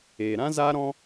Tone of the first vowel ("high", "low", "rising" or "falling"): low